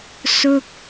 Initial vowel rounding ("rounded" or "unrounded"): rounded